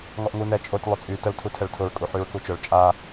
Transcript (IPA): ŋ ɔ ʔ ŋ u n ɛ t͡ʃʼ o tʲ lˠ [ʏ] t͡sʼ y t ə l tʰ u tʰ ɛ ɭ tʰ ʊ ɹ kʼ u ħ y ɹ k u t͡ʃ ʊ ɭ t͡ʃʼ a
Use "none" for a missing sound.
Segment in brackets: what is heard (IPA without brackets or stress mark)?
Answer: ʏ